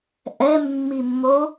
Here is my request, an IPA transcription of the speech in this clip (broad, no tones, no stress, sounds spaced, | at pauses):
ʔ ɛ mː i mː o